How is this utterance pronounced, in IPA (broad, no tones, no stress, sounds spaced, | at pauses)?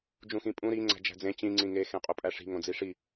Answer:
d͡ʒ ũ x ĩ pʼ ũ ɾ i ŋ͡ǀ æ̤ d͡ʒ æ̤ d͡z ẽ t͡ɕ ĩ ŋ͡ǀ ĩ ŋ e x ẽ qʼ o pʼ æ ʂ i̤ ŋ õ d͡z i ʂ i